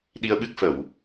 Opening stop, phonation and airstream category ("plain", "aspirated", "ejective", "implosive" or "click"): implosive